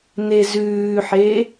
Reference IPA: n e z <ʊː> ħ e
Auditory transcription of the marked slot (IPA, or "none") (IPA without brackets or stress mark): ʉː